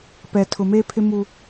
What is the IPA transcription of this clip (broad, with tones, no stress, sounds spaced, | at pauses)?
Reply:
p ɛ˨ tʰ ʊ˨ m eː˦ pʰ ɪ˦ m u˦